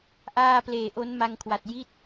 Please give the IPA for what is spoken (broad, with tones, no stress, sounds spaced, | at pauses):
ʔ aː˥˩ p l eː˨˩ ʔ o˦˥ n m a˧ ŋ kʰ w a˨˩ t̚ j i˦˥ t̚